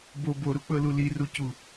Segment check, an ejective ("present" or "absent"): absent